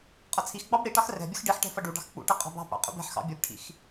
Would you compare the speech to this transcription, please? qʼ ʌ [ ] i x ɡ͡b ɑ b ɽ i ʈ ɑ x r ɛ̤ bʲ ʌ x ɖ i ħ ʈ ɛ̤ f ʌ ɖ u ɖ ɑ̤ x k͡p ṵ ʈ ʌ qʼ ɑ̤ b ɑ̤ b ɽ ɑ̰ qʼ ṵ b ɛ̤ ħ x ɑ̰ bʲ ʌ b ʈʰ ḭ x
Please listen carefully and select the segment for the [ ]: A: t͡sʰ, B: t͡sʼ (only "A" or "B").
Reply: A